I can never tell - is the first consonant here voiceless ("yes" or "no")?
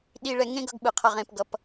no